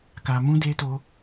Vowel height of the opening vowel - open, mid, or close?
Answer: open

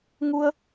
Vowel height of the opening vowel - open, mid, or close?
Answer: close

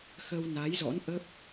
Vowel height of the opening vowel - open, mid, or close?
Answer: mid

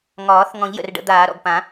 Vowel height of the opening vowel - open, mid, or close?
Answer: open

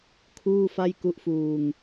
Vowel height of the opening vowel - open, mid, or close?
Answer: close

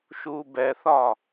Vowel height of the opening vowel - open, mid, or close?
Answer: close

